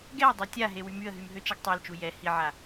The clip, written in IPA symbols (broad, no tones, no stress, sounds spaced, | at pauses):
ɡ ɛ ə̯ dˤ a tʲ a ɦ e w y m y ə̯ ɦ y m ɦ ø t͡ʃ ɛ ɡ tˤ a l t͡ʃ u j ɛ h i ʕ a